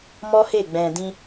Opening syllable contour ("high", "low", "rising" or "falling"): high